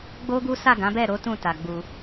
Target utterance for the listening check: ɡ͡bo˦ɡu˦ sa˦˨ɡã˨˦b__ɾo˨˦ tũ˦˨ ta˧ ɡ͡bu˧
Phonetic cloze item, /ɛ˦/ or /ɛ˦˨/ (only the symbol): ɛ˦˨